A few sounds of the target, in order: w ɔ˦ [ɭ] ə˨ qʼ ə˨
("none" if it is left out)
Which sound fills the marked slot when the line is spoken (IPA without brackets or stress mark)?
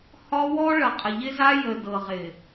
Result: ɭ